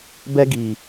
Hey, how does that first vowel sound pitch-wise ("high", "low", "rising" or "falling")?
high